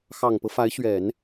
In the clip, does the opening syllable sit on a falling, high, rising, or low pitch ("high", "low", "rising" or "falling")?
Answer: low